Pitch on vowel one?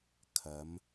rising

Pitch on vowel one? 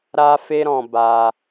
high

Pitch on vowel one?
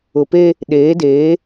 low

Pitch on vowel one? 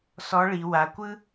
rising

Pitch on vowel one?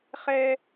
high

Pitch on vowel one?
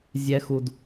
high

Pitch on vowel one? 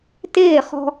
falling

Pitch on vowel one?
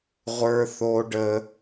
high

